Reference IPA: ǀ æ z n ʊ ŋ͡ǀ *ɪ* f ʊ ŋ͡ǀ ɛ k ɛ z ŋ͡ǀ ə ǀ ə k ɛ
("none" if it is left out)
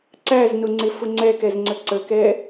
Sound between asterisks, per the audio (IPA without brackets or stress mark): ɪ